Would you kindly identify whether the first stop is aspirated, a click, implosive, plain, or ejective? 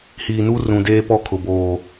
plain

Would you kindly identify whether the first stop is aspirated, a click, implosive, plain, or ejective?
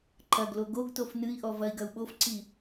click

